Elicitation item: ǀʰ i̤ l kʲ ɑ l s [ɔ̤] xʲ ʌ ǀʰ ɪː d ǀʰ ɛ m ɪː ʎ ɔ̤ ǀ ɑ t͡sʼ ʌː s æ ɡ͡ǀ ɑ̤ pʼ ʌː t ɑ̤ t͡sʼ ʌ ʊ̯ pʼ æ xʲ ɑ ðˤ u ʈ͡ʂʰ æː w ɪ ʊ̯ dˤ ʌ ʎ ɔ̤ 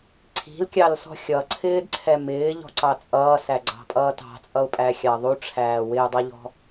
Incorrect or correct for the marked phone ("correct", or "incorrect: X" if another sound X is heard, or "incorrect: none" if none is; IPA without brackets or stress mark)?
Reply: correct